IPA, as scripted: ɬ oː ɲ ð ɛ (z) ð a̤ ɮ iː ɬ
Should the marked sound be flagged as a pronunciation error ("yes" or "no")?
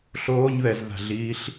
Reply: no